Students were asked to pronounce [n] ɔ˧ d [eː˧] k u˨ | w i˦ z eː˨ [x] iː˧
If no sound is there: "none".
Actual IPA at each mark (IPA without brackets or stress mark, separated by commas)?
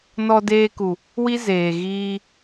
n, eː˧, ɣ